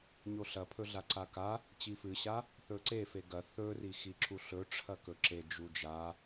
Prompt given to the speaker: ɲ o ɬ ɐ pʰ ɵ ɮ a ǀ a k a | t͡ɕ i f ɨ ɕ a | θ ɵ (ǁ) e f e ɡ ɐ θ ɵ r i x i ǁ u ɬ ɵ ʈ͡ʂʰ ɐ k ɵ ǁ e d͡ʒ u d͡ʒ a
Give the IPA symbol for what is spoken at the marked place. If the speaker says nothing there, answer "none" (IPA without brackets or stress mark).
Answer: ǀ